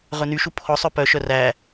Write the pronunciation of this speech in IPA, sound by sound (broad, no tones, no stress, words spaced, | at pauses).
ʁɵnyʃu pʰɔsˤ œpœʃœr æ